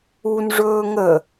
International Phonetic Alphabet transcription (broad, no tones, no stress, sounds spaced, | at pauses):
u n ʐ ɵː ŋ ə